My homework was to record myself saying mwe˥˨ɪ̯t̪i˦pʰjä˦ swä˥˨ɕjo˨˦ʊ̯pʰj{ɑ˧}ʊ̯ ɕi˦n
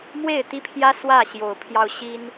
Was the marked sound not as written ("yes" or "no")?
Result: no